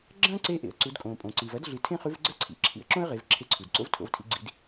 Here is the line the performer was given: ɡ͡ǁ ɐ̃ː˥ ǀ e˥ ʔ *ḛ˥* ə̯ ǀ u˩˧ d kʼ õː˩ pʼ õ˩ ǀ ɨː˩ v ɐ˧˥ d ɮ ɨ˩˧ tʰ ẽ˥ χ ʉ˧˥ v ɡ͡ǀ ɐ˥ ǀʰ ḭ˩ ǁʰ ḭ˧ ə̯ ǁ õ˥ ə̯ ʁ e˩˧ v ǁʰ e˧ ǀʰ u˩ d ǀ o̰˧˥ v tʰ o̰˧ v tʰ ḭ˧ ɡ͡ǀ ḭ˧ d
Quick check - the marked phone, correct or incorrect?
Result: incorrect